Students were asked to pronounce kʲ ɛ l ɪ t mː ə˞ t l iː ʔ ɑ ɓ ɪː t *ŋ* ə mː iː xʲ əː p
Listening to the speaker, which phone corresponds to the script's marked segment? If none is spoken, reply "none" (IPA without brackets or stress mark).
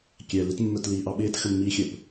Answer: x